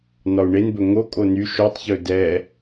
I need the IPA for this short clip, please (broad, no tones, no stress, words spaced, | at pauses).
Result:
nɒu̯ɳenbɵ ŋokʼo ny ʃotˤ çɵdɛ